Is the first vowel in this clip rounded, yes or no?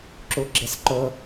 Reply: yes